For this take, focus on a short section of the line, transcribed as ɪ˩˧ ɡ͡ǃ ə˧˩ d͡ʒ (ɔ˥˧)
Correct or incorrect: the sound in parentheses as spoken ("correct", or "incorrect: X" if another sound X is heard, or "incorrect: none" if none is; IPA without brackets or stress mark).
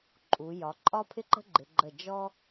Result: incorrect: ɔ˥